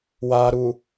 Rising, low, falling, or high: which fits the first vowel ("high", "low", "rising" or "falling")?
low